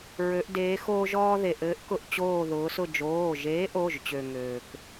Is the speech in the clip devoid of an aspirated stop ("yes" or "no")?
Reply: yes